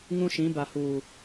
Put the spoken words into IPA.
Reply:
ŋ ũ˦ ʃ ĩ˨˦ b a˨ h uː˨

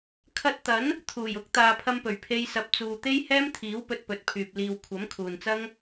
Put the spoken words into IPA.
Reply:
kʰ ɐ˧ t̚ t̪ ɐ˨˥ n | t̪ʰ uː˨˩ j ʊ˨˥ k̚ t̪ aː˨ pʰ ɐ˧ m p ɵ˨˩ ɥ pʰ e˧ j s ɐ˨ p̚ t͡s uː˨ t̪ e˥ j h ɛː˥ m t̪ʰ iː˨˥ w p ɵ˧ t̚ p ɵ˨ t̚ pʰ yː˨ p̚ l iː˨ w kʷʰ ɐ˨˥ m kʰ uː˨ n t͡s ɐ˥ ŋ

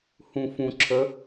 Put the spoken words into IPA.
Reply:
h ũ f ũ ǁʰ ə

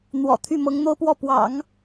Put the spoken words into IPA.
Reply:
n̪ w ɔ̰˨˩ t̪ʰ y˥˩ m ɤ˧˥ ŋ n̪ o˥ ʊ̯ p w ɔ˥˩ p w ɑ̰˨˩˦ ŋ

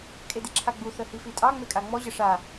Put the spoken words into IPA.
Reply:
kʼ e d i ǁʰ a ɡ͡b u θ ə h i f i tʼ ɑ ŋ͡m e kʼ a ŋ͡m ɔ ʑ ə ʂ a

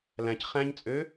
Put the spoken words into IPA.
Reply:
l æ̃ c χ æ̃ ɲ t͡sʼ ø

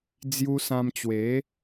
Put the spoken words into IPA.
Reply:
d͡z j u˧ s ã˧ m t͡ɕ w e˨˦

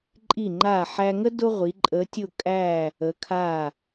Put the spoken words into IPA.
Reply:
ǃʼ i˧˩ ŋ͡ǃ a˧˩ ħ æ˧ ŋ ə˥ d ʊ˥ ʁʷ i˩˧ ǃʼ ə˩˧ tʲ ʊ˧˩ kʼ æ˧˩ | ə˩˧ kʰ a˧˩

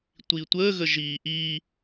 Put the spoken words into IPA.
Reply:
tʷ i tʷ əː ɣ ə ʒ iː ʔ i

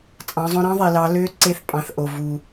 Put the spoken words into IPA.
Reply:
t͡sʼ ɑ̃˩˧ zˤ õ˧ ɾ ɑ̃˥ ðˤ i˩ l ɑ˩˧ l ø˧˥ ǀ e˧ θ pʼ ɑ̃˩˧ θ ʔ o˩ v u˩

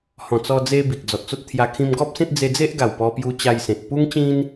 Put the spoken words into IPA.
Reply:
h ɔ̃˨˩ t͡s ɔ˧ d͡z e˧ b i˨ k̚ d͡z ɔ˨ t̚ t͡s o˦ t̚ t̪ʰ j a˧ kʰ ĩ˧ m ɡ ɔ˦ p̚ s ẽ˦ t̚ d͡z e˧ d͡z e˦ ʔ ɡ a˨˩ w p ɔ˧ p j u˧ t͡ɕ a˧ j s ẽ˨ t̚ p u˦ ŋ t͡ɕ ĩ˦ n

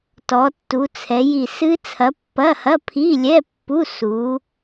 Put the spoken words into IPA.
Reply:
t ɔ˨˦ tː u˨˦ t͡sʰ ɛ˨˦ j i˦˨ s ɨ˦˥ t͡sʰ ɐ˨˦ pː ɐ˧˥˧ h ɐ˧˥˧ pʰ i˧˥˧ lʲ ɛ˧˥˧ pː u˧˥˧ s u˨˦

